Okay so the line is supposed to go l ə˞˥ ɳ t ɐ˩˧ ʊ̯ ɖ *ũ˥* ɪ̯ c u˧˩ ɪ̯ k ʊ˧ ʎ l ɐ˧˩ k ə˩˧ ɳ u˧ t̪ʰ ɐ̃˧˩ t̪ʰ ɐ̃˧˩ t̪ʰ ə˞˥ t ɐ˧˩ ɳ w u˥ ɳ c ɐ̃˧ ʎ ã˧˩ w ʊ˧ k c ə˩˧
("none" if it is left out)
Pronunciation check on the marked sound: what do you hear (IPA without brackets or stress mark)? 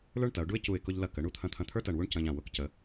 u˥